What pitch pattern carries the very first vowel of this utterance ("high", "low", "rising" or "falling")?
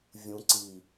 low